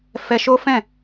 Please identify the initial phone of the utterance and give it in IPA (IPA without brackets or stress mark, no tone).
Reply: f